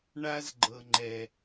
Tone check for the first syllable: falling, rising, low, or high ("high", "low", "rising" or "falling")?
high